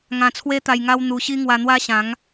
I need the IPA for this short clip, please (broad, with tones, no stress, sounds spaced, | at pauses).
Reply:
ŋ ã˧ t͡sʰ w e˦ t̪ a˧ j ŋ a˦ w n̪ u˧ ɕ i˦ ŋ w a˧ n̪ w a˦ ɕ ã˨˦ ŋ